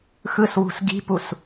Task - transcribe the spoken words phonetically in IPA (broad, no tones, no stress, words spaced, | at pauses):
xɯswṳs ɡi̤pus